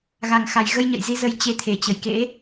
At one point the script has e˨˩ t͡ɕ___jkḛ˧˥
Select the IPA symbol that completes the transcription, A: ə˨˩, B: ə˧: A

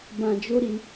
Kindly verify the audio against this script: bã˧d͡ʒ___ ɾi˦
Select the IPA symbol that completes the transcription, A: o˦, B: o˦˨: A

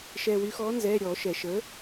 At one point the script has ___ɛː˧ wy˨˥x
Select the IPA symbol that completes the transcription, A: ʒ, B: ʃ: B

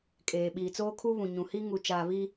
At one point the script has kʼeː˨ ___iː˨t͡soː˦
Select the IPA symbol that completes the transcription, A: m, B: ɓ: B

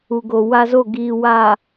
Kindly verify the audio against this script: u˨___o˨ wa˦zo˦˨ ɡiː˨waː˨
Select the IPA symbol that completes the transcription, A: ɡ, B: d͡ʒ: A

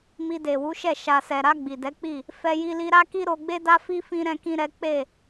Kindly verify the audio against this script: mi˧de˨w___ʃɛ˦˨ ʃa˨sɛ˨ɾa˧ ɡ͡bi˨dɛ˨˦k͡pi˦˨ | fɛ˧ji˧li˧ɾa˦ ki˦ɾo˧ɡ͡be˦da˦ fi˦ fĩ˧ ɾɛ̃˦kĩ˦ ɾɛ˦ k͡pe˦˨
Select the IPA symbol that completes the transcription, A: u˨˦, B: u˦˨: A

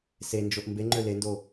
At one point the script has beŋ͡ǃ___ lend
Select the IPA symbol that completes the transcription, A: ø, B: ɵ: A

